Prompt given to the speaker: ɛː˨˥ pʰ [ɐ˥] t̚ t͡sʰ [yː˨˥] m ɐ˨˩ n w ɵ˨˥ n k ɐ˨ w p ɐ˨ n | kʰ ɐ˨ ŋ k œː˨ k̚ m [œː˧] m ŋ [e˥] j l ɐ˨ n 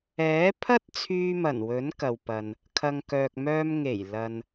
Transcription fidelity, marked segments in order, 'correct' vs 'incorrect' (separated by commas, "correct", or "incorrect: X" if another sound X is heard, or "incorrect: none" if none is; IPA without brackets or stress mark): correct, incorrect: yː˧, correct, incorrect: e˨˩